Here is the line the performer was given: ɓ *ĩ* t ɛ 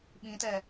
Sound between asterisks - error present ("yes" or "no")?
no